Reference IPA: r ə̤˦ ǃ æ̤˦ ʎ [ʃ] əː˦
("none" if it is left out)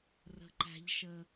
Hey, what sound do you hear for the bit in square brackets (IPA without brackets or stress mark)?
ʃ